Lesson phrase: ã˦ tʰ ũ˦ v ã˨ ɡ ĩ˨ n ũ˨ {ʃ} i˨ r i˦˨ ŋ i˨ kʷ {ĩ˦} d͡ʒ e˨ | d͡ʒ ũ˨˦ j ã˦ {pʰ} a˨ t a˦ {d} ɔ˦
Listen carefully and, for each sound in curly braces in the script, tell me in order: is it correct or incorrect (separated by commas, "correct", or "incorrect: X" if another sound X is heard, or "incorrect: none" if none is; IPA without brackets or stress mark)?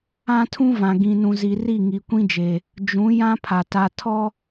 incorrect: z, correct, correct, incorrect: tʰ